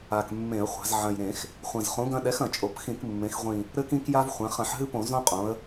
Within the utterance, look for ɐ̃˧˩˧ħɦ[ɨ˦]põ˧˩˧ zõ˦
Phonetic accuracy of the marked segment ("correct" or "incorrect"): correct